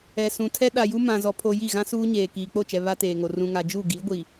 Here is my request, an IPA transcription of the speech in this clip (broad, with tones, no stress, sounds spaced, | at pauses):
ɛ˨ s ũ˨ tʰ ɛ˦ ɗ a˨ j u˦ m ã˨ z ɔ˨ pʰ o˨ j i˦˨ ɣ ã˦ s uː˦ ɲ eː˨ k iː˨ k͡p o˦˨ t͡ʃ ɛ˨ β a˦ t eː˨ ŋ o˨ r ũ˨ ŋ a˨ d͡ʒ u˦˨ ɡ i˨˦ ɡʷ i˨